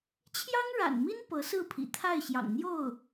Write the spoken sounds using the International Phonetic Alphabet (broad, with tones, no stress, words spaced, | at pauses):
t͡ɕʰjɑ˥ŋɻa̰˨˩nmi˥n pɤ˧˥sɹ̩˥˩pʰḭ˨˩ t̪ʰa˥˩ɪ̯ɕjɑ̰˨˩ŋn̪jo˥˩ʊ̯